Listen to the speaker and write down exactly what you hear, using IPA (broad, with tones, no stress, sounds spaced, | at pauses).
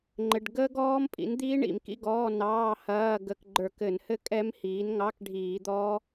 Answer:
ŋ͡ǃ ɘ˧˥˧ ɖ ɡ əː˦˥ ɡ ɔː˦˥ m pʼ ḭ˩˥ n d̪ iː˦˥ ɳ ḭ˧˩˧ m k ḭ˧˥˧ ɡ ɔː˧˥˧ n ɑː˧˥˧ h ɐː˧˥˧ ɡ ə˧˩˧ k ɡ͡ǃ ə˞˧˩˧ k ɘ˧˩˧ n h ɘ˦˥ kʼ ɛ˦˥ m h iː˩˥ n ŋ ɑ˧˥˧ k ɖʱ iː˧˩˧ d̪ ɔː˦˥